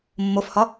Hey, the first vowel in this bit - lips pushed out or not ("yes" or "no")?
yes